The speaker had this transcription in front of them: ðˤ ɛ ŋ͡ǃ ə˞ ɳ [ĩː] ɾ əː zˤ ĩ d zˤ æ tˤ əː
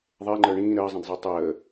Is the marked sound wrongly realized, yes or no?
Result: no